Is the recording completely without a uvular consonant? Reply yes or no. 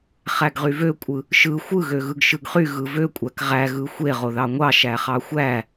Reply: no